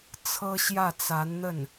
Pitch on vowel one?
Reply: high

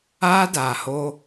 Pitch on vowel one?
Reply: high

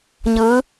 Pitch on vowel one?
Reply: rising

